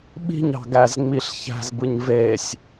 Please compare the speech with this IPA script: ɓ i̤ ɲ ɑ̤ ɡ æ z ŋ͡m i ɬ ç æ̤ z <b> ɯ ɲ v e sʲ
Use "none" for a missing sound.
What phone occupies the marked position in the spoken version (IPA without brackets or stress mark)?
b